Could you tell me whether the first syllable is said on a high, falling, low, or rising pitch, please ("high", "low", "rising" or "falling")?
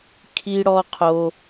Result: high